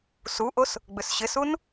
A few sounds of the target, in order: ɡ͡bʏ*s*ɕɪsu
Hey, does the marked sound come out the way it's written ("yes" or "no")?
yes